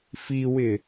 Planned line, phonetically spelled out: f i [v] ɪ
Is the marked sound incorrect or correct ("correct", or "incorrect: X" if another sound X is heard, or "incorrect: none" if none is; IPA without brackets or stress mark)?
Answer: incorrect: w